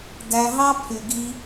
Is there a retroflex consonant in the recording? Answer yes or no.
no